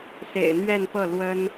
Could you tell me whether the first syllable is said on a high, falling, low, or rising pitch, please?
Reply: low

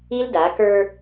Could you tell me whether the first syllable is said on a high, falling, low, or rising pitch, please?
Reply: high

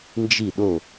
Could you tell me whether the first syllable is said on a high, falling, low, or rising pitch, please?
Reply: falling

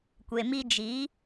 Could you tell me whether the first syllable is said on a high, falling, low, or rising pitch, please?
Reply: low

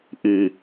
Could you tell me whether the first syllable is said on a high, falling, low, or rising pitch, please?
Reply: low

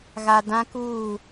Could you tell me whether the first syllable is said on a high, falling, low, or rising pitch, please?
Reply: low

